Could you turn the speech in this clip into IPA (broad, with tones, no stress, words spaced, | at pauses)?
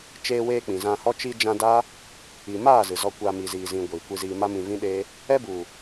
t͡ʃeː˧weː˧ k͡pĩ˨zã˧hɔ˦ t͡ʃi˧d͡ʒã˧ da˦ | i˨maː˦˨ zɨ˨zɔ˧kʷaː˧ mi˨ziː˨zĩ˨ ɡʷiː˨kʷi˧ziː˧ ma˦mĩ˧vĩ˦ɗe˦ | ɛ˦bu˨